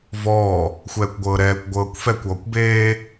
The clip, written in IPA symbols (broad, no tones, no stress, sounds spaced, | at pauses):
v ɔː | xʷ ɛː kʷ ɡʷ ɤː ɾ ɛː kʷ ɡʷ ɤː kʷ f ɛ kʷ ɔː kʷ b eː